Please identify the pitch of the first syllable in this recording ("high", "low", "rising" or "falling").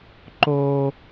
high